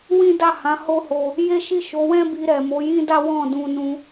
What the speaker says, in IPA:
w ĩ˦ d a˦˨ h ã˨˦ h o˦ h o˧ | j e˦ ʃ i˦˨ ʃ o˨˦ w ɛ̃˦ b i˧ ɾ ɛ˨ m o˨˦ j ĩ˦ d a˦ w ɔ̃˦˨ d ũ˧ n ũ˧

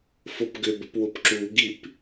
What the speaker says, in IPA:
f o p ɡ ʏ b ə p w ʊ p ǁ u ɡ i p

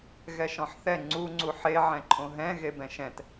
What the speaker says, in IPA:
ɣ ɛ ʃ ɔ̃ ħ θ ɛ ŋ͡ǀ u ŋ͡ǀ u ħ e ʕ ɛ̃ ǃʰ õ ɦ ɛ̃ ɣ e b ɛ̃ ʃ ɛ̃ t

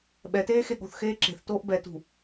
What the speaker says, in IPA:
ɓ ɛ t eː x e ɠ o̤ θ x eː ǁ e̤ θ t oː ʔ b ɛ t ṳ

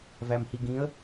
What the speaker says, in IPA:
v æ m h i ɡ ĩ ə̯

